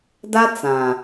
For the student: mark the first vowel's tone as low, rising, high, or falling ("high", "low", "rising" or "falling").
high